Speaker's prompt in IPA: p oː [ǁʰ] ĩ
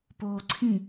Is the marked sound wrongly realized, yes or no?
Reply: yes